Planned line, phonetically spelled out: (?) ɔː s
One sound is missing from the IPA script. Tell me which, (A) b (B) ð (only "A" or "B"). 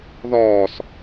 B